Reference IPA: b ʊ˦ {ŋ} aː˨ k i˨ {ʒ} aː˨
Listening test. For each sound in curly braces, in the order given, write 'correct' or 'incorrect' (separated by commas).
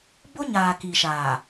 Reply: incorrect, incorrect